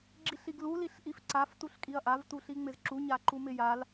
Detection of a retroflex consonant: absent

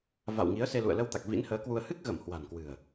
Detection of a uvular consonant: absent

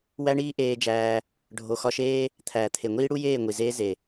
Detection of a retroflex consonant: present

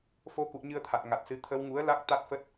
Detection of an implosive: absent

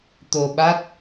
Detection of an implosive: present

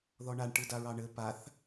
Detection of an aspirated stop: absent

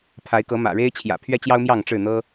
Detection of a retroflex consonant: present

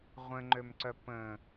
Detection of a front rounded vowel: present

